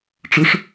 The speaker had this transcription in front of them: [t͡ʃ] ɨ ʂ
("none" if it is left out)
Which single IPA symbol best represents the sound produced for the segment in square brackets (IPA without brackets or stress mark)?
ʈ͡ʂ